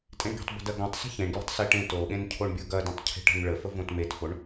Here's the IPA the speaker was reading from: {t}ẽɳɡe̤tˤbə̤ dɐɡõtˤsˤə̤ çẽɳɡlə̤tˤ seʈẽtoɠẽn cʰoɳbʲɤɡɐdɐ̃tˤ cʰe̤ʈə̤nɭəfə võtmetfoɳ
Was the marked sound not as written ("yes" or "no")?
yes